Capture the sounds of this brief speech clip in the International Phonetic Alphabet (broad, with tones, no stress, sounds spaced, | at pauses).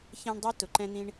ç ɛ̃˦ ɳ dˤ ʌ˥ t ʊ˩ ǃ ɛ̃˦ n̪ ĩ˦ ɳ